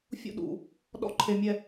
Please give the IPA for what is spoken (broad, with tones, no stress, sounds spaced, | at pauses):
fʲ ṵ˦˨ ɗ ṵ˨ | ɗ ɔ̰˦ ǃʰ e˨ mʲ ɛ˨